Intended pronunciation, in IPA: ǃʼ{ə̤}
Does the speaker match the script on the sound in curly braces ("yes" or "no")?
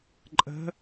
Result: yes